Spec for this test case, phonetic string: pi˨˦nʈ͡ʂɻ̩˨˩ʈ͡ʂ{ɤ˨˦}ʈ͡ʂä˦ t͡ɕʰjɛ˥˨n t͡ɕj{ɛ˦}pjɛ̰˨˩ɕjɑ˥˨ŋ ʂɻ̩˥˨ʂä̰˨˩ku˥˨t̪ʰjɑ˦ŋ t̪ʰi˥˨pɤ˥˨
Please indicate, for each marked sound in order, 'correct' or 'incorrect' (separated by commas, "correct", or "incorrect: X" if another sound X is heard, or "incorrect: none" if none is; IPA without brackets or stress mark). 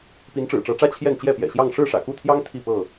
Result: correct, incorrect: ɛ˥˨